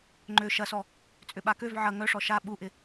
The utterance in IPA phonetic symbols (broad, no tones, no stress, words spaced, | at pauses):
ŋ͡ǃø ʃɐsɔ | t͡sʼʏɓakøv ʕɐ ŋœʂɔ ʃa ɓuʔɪ